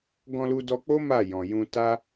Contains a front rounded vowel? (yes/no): no